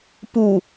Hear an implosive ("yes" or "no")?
no